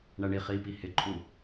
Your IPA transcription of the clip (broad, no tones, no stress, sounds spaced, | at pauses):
ɳ æ ɳ i χ i p i h ɪ ǃʼ u